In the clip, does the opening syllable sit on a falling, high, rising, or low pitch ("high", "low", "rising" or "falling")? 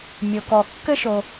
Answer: low